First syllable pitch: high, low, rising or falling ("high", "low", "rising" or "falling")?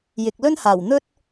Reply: low